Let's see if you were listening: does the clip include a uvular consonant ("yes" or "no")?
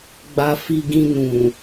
no